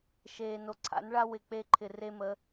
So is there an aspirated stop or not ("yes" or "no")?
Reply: yes